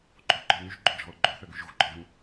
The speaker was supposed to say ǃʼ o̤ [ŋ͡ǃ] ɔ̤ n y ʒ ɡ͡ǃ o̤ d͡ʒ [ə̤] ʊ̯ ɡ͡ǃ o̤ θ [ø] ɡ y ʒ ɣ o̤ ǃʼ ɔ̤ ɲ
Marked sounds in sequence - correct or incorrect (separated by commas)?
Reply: incorrect, incorrect, correct